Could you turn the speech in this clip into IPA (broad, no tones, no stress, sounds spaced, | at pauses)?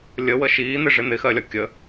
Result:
lʲ ə w ə ʃ iː n̪ ɪ ʐ ɪ n̪ ɪ x ɜ lʲ ɒ kʲ ə